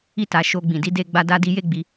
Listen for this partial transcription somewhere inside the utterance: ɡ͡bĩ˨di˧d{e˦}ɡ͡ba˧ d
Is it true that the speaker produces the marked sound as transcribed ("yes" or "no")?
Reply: no